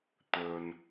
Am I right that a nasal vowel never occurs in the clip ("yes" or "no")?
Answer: yes